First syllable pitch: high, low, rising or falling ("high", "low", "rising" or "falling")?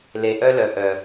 low